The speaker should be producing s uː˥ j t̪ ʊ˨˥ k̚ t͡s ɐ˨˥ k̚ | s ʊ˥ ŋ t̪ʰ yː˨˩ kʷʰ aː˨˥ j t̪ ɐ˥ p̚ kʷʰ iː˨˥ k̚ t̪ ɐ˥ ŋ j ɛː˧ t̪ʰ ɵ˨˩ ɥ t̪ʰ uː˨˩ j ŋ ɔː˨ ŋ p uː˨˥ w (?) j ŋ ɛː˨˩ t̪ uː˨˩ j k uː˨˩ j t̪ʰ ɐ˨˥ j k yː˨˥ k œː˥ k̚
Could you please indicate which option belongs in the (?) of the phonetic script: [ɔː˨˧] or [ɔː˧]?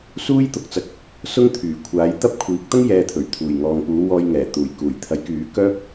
ɔː˧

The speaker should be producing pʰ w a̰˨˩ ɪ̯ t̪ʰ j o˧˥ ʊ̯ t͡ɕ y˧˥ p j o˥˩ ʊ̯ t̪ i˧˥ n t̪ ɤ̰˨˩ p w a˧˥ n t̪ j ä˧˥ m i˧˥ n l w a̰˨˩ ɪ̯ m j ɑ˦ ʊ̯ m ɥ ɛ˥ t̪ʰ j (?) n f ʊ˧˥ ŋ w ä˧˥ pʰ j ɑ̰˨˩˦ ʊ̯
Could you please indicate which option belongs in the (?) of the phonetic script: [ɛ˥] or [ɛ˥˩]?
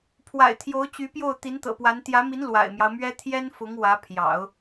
ɛ˥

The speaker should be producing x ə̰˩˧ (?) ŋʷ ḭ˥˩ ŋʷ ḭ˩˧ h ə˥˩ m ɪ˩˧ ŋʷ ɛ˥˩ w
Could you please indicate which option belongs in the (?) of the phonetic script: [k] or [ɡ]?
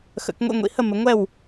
k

